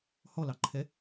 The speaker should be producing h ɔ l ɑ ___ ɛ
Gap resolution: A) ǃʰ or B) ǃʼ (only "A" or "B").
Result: A